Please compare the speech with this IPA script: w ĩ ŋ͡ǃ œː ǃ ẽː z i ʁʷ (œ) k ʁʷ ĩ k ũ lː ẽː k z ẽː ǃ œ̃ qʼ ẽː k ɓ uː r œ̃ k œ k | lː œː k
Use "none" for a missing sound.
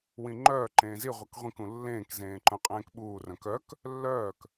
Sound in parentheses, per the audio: œ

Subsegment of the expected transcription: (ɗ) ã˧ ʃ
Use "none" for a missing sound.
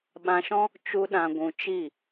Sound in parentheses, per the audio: ɓ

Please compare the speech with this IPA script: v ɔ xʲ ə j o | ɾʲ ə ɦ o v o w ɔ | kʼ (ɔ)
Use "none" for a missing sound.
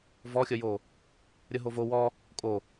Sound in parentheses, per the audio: o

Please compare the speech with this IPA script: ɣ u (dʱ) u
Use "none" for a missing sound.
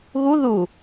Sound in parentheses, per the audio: ð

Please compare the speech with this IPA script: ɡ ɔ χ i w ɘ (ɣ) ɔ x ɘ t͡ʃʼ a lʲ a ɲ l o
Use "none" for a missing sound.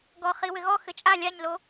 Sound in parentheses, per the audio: ɣ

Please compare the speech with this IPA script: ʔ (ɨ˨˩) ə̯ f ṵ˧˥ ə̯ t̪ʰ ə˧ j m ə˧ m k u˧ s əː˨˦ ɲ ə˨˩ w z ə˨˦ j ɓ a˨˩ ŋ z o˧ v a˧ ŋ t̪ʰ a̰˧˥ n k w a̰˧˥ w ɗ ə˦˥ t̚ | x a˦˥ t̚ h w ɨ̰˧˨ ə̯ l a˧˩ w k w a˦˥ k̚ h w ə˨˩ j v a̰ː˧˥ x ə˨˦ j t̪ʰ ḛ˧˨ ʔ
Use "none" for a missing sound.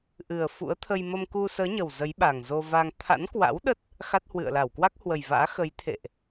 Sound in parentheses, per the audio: ɨ˨˩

